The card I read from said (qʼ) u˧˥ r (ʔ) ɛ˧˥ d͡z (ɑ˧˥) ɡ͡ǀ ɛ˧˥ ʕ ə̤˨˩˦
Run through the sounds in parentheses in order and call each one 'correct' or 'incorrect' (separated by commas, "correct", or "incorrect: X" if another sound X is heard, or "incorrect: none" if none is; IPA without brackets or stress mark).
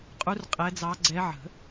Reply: correct, incorrect: qʼ, correct